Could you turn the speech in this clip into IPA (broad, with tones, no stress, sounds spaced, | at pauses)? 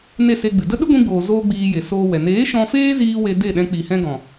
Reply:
n e˦˨ s e˧ ɡ͡b ɨ˨ d ə˦ ɗ ɨ˦ ɡʷ ĩ˧ ɡ͡b oː˨ z oː˧ ɡ͡b iː˧ j e˨ s oː˧ w ɛ˨ n eː˨˦ ʃ ɔ̃˧ f eː˦ z iː˧ w e˧ d e˦˨ ɗ ɛ̃˧ k͡p i˨ h ɛ̃˧ ɡ ɔ̃˨